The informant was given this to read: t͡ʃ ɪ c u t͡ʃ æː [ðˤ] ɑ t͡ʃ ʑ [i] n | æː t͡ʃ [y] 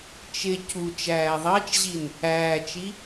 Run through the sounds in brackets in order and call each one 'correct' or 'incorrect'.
correct, correct, incorrect

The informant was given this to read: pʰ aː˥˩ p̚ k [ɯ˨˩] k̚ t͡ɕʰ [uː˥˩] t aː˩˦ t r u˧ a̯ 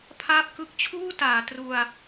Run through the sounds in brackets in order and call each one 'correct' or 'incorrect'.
incorrect, correct

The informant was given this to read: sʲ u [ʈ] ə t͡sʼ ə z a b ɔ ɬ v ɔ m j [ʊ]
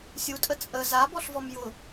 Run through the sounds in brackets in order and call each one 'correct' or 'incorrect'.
incorrect, correct

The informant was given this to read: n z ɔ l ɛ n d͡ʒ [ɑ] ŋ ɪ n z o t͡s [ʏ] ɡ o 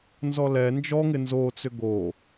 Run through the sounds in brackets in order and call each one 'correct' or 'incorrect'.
incorrect, correct

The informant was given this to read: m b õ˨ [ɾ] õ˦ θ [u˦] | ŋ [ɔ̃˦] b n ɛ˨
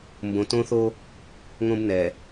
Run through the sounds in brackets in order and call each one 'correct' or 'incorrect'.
incorrect, incorrect, incorrect

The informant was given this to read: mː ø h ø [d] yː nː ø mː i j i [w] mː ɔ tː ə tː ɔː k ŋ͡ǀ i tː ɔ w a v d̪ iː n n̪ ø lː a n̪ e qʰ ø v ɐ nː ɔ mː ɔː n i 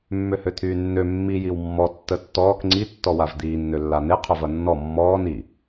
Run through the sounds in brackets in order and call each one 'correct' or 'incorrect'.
incorrect, correct

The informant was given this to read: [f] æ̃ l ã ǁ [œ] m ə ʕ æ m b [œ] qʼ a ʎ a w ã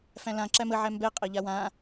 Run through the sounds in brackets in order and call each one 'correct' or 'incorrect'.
correct, incorrect, incorrect

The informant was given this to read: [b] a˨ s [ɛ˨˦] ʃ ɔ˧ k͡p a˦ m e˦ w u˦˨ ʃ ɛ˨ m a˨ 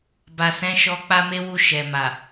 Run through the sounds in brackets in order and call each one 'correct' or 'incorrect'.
correct, incorrect

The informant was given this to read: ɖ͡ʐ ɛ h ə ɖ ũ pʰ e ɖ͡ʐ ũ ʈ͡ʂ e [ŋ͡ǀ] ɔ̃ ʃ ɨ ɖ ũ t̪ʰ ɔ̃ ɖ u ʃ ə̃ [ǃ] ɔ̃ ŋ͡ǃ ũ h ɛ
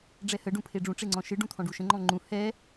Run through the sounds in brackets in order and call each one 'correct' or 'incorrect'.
correct, incorrect

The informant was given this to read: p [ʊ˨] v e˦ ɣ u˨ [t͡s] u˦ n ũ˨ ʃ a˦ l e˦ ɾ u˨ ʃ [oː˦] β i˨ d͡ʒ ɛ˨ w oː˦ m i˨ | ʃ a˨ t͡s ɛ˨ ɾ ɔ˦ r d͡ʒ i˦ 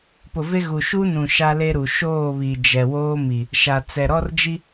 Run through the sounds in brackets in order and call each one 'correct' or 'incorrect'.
correct, incorrect, incorrect

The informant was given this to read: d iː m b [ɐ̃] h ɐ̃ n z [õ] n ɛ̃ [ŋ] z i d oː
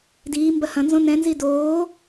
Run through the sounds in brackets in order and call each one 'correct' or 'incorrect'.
incorrect, correct, incorrect

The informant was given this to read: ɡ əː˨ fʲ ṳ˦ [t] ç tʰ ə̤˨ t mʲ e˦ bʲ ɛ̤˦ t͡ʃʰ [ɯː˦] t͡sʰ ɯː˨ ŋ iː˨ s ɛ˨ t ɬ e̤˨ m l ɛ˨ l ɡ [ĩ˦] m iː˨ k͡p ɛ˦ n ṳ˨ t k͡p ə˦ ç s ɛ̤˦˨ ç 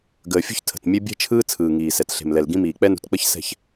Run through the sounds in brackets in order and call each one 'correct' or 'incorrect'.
incorrect, correct, correct

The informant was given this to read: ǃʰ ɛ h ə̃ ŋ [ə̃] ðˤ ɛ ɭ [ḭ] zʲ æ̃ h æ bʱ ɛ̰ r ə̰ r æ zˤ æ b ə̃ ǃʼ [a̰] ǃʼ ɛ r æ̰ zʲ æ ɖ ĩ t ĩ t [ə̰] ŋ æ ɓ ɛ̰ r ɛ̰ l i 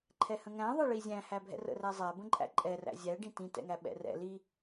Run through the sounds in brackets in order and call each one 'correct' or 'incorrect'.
incorrect, incorrect, incorrect, incorrect

